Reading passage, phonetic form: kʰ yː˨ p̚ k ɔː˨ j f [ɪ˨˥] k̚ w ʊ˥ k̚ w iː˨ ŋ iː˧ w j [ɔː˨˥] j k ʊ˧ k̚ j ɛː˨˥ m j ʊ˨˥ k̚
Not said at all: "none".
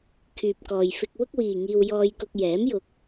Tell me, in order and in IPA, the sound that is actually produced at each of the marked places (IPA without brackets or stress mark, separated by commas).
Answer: ɪ˧, ɔː˧